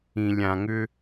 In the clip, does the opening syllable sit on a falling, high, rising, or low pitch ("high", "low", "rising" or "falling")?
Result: low